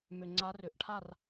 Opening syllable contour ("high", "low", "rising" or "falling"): low